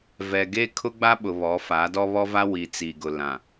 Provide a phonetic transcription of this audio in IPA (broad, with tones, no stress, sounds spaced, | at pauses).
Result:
v ɛ˨ ɡ e˦ kʰ ʊ˦ ɡ͡b a˦ ɓ ʊ˨ β ɔ˨˦ f a˨˦ d ɔ˦ β ɔ˦ v a˦ w i˨ t͡s i˨ ɡ ʊ˨ l ã˨